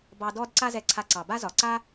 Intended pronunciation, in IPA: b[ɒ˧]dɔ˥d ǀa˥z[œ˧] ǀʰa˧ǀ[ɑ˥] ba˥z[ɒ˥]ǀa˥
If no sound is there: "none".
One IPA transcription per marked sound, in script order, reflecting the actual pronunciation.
ɑ˧, ɛ˧, ɑ˩, ɒ˩

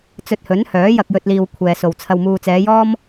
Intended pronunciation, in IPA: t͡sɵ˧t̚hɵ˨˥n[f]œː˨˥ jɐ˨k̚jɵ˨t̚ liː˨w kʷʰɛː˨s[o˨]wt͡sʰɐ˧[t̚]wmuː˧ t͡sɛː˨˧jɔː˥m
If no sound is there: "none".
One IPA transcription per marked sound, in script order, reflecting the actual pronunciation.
h, o˨, none

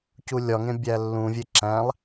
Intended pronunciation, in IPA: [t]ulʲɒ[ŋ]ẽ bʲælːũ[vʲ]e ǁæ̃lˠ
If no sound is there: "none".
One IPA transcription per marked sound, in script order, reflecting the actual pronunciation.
c, ŋ, vʲ

